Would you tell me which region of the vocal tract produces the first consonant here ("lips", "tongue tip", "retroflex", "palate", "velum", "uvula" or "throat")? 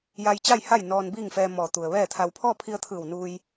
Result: palate